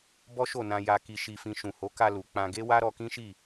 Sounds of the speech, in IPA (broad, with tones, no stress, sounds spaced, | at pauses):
b ɔ˦ ʃ o˦˨ n ã˧ j a˧ k i˧ ʃ i˧ f ĩ˧ ʃ ũ˨ h o˨˦ k a˧ l u˨ k͡p ã˧ ɡ e˦ w a˦ ɾ ɔ˧ k ĩ˦ ʃ i˦˨